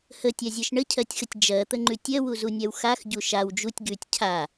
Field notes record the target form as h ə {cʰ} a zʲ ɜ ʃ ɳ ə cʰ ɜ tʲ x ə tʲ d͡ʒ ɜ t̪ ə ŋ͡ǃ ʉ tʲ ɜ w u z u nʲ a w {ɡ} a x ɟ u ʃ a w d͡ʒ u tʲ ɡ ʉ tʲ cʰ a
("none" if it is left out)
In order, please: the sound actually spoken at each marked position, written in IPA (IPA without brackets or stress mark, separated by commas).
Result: tʲ, x